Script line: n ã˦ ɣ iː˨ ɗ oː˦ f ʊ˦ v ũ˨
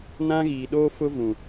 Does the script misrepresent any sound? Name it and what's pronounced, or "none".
none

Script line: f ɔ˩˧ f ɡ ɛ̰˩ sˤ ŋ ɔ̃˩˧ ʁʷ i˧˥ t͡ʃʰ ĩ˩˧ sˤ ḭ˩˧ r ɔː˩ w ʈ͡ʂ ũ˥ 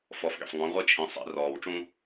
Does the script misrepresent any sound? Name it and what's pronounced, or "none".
none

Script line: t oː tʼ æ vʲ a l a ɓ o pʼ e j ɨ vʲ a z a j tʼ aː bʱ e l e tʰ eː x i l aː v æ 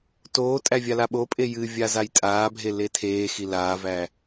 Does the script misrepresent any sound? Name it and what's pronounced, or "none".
none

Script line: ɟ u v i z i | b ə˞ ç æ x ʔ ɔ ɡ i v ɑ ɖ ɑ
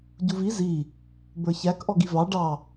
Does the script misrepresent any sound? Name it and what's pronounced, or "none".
x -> k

